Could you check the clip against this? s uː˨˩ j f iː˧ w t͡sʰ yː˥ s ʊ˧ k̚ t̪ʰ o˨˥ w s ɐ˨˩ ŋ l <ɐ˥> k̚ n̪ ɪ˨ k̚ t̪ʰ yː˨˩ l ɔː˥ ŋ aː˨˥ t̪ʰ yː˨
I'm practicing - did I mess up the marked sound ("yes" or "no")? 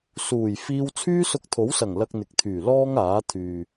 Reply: yes